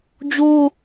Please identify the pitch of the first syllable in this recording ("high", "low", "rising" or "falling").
high